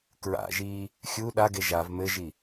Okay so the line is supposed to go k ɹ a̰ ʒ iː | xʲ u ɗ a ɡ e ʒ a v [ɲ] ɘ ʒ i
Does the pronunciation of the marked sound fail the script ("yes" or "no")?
yes